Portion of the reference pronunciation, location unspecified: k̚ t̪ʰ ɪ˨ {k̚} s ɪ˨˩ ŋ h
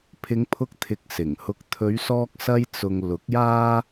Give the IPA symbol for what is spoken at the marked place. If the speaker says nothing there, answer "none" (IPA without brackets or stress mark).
k̚